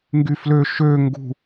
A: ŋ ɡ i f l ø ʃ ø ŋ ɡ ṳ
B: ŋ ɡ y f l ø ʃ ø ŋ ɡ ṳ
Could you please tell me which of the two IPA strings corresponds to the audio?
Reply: B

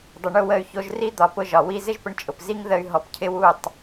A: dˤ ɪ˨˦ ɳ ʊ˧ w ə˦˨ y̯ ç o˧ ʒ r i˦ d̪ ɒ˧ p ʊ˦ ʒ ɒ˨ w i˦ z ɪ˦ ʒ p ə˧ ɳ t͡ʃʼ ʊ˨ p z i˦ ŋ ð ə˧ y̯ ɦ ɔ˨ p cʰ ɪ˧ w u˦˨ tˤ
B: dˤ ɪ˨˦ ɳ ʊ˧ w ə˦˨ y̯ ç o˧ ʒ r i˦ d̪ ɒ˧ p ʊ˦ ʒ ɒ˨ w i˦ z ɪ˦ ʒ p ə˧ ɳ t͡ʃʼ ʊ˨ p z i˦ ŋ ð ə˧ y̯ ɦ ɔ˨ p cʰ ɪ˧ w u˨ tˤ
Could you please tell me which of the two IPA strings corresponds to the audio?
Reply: A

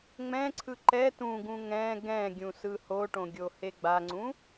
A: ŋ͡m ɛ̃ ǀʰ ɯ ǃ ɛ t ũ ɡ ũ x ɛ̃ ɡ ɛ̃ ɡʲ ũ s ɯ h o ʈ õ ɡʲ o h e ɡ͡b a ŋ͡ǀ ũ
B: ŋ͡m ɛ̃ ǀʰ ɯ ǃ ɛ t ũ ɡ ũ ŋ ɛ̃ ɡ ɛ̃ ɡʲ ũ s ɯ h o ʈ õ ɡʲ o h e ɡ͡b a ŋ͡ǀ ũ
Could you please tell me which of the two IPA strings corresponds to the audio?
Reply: B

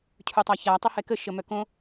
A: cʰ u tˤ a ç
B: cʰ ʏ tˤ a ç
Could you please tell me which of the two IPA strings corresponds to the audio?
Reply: A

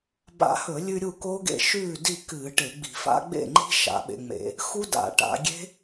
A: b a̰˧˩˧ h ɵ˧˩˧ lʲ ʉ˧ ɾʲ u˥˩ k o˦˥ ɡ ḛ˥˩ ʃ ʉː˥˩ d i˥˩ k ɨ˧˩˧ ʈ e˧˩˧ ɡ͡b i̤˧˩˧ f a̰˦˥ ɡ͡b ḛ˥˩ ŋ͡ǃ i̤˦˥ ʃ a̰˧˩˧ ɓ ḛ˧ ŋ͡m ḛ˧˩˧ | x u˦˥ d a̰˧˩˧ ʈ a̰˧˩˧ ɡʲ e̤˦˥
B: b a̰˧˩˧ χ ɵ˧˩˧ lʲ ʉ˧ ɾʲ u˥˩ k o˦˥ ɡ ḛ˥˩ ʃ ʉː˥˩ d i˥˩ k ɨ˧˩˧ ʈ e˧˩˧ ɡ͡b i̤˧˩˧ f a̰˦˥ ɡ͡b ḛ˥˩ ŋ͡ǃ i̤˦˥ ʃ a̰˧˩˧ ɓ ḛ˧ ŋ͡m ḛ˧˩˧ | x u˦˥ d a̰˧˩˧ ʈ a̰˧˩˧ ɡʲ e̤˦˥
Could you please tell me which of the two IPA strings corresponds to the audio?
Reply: A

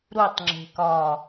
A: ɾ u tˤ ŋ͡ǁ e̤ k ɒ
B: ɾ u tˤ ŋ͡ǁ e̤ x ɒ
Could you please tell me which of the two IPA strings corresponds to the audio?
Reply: A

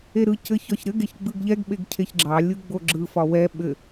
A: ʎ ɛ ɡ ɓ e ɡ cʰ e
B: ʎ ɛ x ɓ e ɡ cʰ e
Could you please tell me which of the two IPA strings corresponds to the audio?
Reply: A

